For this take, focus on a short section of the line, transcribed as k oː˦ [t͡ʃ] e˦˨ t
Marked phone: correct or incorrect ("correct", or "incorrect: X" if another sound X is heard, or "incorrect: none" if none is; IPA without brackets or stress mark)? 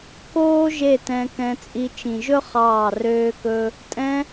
incorrect: ʒ